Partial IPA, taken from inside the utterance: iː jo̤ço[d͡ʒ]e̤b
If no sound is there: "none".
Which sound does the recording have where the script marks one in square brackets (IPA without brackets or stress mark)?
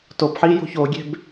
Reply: ɡʲ